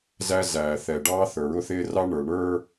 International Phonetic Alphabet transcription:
zæ˦ zæː˨θɛ˨ɖɑː˦ θə˞˨ɹʊ˦θɪː˦rɑ˦ ɳə˞˨ɳə˞˦

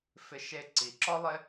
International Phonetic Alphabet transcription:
fɪ˨ ʃe˨ ǀi˩ǁɔ˥lˠɪ˦

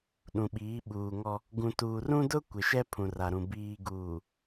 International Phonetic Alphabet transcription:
ɗũ˨ɓiː˨˦ɓuː˨ŋɔ˦ | ɡũ˨tuː˨rũ˦dʊ˦ kʷɪ˨ʃɛ˦ pʰũ˨ra˨ɾũ˨ biː˨ɡuː˨

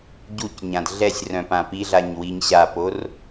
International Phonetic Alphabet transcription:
ɟucɲãd ɮɛsʲrœ̃ pãpiɮaɲ wiɲɕapor

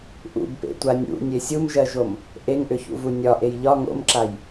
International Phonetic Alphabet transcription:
ʔṵbpḛtʷa nʲṵnʲe sʲumʒɜʒom | ʔeŋʔʏçṵvu nʲɒʔej ʎɒ ŋo̰mǁaj

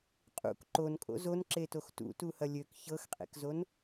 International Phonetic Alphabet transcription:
qʼṵk ǃonkʼo̰ zonǁetox tṵtuhɐ lʲøk çɤxqʼḛkzon

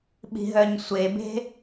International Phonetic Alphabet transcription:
ɓi̤ɦœɲsʷebe̤

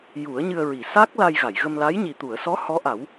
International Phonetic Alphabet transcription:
ju˨˩˦ə̯ɲɨ˧ə̯ɹi˨˩˨ sa˦˥k̚ la˧j ɣa˨˩˨jɣə˧mla˧˥j ɲi˨˩t̪u˨˩˨ə̯sɔ˧˥ hɔ˧˥ʔa˨˩˦w

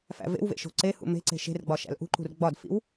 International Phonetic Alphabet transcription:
fæ̰vḛwvḛ ʃo̤ǀehṵ me̤ǀe̤ ʃe̤rɡ͡bɒ ʃæ̰lʔṳǃṳr ɡ͡bɒdfḭw

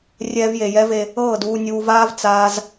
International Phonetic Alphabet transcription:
rʲɛː˧vje˨jɛ˦ve˧ | ɤː˦˨duː˧nʲuː˧vaː˦v t͡saː˦z

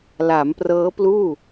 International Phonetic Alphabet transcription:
la˩˦mprɤː˦˥pluː˥˩

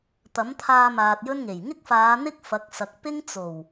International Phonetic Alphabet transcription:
t̪ɐ˨˥mt̪ʰaː˧ maː˨t̚jɵ˥nŋe˨˩j ŋɪ˥k̚faː˨˧n̪ɪ˥k̚ fɐ˨˥k̚sɐ˨k̚pɪ˥ŋ t͡so˨˩w

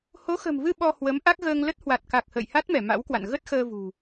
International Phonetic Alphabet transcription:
ho˨˦xə̤˨˩mvɨ˧ ɓɔ˧hwə˨˦m ʔa˦˥k̚ ɣəː˧ŋlə˦˥t̚ hwa˨˩t̚ka˨˩k̚ hə̰ː˧˨jha˦˥t̚mɛ˧˩ ma̰˧˥wkwa̰˧˨n ɣə˦˥t̚xəː˧vṳ˨˩

